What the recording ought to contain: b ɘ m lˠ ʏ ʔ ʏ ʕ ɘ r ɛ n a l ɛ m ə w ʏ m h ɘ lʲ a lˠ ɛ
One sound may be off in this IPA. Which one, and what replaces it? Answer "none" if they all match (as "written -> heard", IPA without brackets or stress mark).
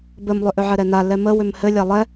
r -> ɾ